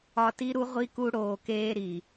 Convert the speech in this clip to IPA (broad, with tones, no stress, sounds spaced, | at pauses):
ɒ˧ t i˦ ɾ u˦ ʁʷ i˦ k u˧ ɽ oː˨ k eː˦ ɾ i˨